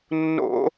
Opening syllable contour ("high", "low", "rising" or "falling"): high